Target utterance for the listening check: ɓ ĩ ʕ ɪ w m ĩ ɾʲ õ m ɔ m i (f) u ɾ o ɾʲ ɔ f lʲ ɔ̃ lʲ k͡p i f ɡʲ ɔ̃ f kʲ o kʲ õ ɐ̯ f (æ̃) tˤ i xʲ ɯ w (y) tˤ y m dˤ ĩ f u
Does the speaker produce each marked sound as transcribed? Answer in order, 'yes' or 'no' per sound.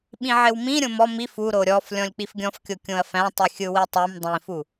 yes, yes, no

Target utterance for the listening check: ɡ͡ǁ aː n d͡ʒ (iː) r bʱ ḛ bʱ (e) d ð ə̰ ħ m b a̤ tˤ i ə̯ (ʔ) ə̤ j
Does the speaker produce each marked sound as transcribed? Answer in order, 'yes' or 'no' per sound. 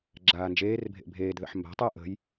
no, no, yes

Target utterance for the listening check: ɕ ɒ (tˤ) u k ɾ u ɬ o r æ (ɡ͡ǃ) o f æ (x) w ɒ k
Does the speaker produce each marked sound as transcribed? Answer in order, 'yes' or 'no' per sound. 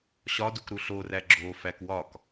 no, no, no

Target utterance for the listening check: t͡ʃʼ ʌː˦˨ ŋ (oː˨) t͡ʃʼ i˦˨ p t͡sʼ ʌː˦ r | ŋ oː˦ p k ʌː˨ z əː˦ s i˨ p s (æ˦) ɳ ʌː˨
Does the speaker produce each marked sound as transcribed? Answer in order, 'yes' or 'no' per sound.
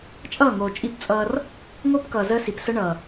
yes, no

